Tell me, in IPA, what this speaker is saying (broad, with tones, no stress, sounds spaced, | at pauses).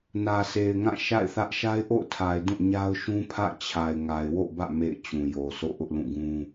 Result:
n ä˨ sʰ e˨ ɪ̯ ŋ ã˦˨ ʃ a̰˦˨ ɪ̯ θ ä˦ ʔ ʃ a˦ ɪ̯ ʔ o̰˦˨ ʊ̯ tʰ a˨ ɪ̯ d ũ˦˨ ɲ a˦ ʊ̯ ʃ ũ˦ pʰ ä̰˦˨ t͡ɕʰ a˨ ɪ̯ ŋ a˨ ɪ̯ w o̰˦˨ b ä̰˦˨ m ḛ˦˨ ɪ̯ t͡ɕ ũ˨ j o˨ sʰ o̰˦˨ ʔ ʊ˦ ʔ l ũ˦˨ ɡ ũ˦